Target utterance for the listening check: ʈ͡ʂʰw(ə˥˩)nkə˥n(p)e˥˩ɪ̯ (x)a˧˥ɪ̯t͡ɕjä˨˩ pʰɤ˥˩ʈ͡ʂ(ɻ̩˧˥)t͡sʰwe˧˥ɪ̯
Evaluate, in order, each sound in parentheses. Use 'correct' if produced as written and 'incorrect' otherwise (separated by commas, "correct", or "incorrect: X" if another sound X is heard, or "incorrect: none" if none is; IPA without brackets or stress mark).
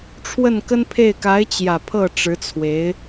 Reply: correct, incorrect: pʰ, incorrect: k, correct